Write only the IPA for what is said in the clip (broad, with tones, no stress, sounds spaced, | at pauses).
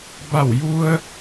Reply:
b a˧˩ w j u˧ ə̯